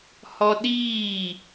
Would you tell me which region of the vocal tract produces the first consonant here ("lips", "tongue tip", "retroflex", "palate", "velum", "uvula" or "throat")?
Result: throat